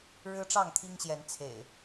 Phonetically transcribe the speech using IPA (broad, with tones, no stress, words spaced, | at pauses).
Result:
ɻɻ̩˦ʈ͡ʂɑ˥˨ŋt̪ʰi˦ŋɕjɛ˨˦n t͡sʰḛ˨˩ɪ̯